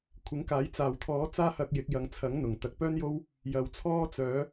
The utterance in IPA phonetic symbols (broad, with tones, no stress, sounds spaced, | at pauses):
kʷʰ ɪ˨˥ ŋ k aː˨˥ j t͡s aː˨ w t̪ʰ ɔː˨˥ t͡s aː˥ h ɐ˧ k̚ j ɪ˨˥ k̚ j ɐ˨ ŋ t͡sʰ ɐ˨˥ ŋ n̪ ʊ˨˩ ŋ t̪ ɐ˨ k̚ p œː˥ n j o˥ w | j ɐ˨˩ w t͡sʰ ɔː˥ t͡s œː˨˥